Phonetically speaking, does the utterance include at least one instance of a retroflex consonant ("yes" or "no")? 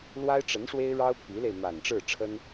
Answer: yes